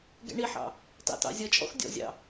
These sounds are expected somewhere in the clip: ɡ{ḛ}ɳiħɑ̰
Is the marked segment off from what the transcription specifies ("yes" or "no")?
yes